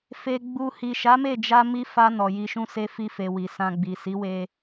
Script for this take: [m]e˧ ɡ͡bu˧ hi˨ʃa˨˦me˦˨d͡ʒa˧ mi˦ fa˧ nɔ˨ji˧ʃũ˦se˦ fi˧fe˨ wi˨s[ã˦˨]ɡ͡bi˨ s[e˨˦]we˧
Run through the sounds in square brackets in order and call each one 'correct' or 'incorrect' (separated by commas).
incorrect, incorrect, incorrect